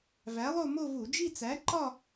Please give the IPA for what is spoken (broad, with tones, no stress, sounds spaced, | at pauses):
v æ˨˥ lˠ o˥˧ m o˥˧ v u˧˩˧ d͡ʒ i˥˧ t͡s æ˨˥ ǃ ɒ˥˧